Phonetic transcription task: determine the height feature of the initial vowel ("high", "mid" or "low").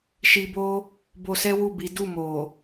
high